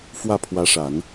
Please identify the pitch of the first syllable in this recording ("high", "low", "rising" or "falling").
falling